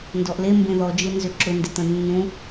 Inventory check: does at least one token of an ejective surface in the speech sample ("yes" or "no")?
no